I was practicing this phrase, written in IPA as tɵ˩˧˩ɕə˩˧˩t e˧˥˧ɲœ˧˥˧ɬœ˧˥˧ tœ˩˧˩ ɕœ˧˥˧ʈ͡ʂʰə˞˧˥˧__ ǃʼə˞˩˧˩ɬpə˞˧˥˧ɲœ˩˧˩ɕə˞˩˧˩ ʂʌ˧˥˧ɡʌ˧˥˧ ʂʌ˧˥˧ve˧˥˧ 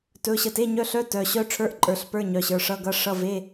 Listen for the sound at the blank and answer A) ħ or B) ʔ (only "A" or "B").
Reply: B